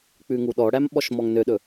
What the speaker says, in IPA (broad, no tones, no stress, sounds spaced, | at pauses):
k͡p ʉ ŋ u ɗ ɔ ɽ æ m ɓ ɔ ʃ m ɔ ŋ n ø ɗ ɵ